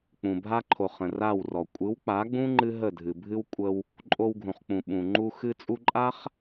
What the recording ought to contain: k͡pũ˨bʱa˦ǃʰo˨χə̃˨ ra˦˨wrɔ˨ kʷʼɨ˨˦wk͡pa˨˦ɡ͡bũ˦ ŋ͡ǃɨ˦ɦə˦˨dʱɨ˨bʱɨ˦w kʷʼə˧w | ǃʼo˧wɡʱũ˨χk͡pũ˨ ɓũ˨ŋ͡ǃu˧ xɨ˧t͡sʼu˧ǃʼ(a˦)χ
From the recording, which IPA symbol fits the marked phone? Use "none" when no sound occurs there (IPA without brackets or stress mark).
a˦